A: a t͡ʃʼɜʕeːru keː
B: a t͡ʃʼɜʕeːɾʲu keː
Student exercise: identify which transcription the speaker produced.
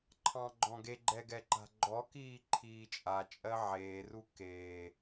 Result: A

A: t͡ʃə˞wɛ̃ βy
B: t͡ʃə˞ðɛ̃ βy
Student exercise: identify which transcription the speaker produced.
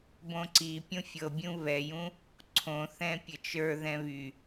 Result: B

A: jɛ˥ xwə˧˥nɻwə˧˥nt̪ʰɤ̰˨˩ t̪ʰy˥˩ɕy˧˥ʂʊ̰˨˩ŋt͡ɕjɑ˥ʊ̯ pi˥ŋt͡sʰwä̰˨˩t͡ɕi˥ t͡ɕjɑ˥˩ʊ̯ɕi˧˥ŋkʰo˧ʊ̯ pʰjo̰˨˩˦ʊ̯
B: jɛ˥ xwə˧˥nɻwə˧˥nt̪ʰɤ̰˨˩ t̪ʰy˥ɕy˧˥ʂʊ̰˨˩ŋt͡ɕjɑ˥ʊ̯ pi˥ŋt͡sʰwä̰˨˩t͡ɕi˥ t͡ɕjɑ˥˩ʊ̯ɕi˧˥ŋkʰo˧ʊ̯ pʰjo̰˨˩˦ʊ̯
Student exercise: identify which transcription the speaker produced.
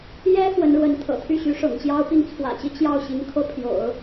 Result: A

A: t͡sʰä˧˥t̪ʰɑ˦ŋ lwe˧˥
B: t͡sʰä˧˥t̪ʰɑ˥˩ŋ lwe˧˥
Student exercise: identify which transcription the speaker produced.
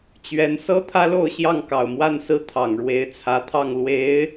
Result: B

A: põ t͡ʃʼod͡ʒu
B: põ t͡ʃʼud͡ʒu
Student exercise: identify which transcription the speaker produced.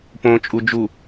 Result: B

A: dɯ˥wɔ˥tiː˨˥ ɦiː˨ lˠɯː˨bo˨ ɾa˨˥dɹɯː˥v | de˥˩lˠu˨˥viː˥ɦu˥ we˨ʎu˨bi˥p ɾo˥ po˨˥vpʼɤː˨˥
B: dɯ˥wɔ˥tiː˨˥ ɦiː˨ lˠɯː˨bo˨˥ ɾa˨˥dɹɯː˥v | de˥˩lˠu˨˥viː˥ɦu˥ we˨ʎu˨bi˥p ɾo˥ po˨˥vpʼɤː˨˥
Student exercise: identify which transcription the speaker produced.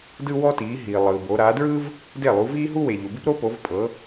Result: B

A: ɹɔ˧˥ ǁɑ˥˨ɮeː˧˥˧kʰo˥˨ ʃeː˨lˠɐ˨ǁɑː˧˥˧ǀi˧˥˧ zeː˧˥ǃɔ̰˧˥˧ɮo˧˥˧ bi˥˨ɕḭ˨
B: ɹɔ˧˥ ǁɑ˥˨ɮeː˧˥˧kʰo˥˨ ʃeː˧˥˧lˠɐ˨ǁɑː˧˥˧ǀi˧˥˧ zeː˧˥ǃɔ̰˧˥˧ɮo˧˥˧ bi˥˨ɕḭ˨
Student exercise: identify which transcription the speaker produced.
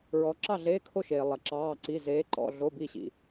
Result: A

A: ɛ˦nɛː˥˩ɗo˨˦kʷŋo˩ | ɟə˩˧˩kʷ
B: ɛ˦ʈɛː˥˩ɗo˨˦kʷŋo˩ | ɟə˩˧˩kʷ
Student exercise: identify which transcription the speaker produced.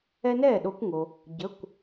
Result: A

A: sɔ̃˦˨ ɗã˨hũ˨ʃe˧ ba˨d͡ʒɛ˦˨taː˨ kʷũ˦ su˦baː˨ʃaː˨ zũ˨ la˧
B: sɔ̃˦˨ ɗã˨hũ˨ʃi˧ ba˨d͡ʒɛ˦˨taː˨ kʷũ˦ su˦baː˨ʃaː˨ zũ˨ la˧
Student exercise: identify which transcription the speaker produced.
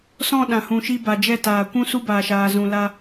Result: B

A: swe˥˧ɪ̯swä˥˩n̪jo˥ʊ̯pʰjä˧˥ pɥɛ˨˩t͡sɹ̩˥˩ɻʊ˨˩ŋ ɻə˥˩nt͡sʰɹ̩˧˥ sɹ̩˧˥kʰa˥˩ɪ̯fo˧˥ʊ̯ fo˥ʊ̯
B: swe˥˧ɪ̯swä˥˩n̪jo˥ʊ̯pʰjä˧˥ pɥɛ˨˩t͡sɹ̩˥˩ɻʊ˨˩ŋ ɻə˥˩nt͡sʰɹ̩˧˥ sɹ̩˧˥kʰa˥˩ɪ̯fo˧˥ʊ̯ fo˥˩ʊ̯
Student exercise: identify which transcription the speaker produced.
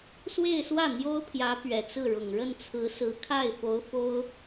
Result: A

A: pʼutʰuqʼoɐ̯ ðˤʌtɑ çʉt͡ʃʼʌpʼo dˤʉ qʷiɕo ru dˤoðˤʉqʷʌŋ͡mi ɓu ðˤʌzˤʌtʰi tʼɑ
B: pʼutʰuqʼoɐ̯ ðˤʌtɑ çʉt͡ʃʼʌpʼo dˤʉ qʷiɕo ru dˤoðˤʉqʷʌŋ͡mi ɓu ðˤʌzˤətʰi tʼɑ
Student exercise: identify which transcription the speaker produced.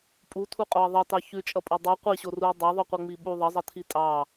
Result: A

